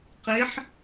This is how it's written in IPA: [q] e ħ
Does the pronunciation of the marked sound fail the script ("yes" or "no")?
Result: no